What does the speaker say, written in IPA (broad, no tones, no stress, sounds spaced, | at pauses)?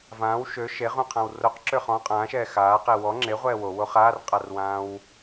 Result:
v ãː w ʃ ø ʃ e ʁ ũ qʰ ã w r o q ǁ ø χ ɔ̃ qʼ ãː ʃ ɛː x aː q e w ɔ ŋ͡ǁ e ʁʷ ɛː w o w o χ aː r qʼ a r w ãː w